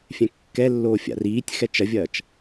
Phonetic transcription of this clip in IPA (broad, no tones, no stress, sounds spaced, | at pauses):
fʲ ɛ̃ kː ɛ lː oː fʲ a̰ r iː tʲ x ɛ t͡ʃ ɐ vʲ ɐː t͡ʃ